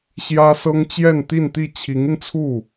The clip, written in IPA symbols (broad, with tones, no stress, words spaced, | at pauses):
ɕjä˥sɤ˥ŋ t͡ɕjɛ˥˧nt̪i˥˧nt̪i˥˩ t͡ɕʰi˧˥ŋi˧nt͡sʰu˥˩